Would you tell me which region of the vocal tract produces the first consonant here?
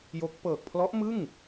palate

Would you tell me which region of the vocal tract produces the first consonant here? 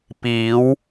lips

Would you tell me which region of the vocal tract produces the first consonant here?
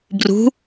lips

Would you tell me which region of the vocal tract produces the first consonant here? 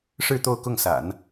retroflex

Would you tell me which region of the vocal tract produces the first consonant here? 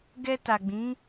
velum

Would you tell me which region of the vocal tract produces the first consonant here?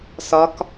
tongue tip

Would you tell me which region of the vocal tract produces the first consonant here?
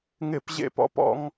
velum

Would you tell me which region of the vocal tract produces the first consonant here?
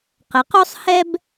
uvula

